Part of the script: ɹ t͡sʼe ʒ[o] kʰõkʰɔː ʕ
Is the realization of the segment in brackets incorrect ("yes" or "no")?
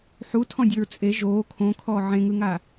yes